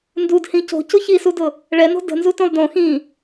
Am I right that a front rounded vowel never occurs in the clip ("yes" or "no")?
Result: yes